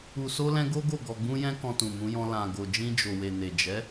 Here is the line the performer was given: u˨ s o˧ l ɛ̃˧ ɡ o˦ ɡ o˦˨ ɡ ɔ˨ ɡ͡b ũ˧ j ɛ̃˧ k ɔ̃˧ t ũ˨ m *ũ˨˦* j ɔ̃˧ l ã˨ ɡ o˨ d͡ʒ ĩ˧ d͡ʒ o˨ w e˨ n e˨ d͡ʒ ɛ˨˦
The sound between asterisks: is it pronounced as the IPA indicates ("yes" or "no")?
yes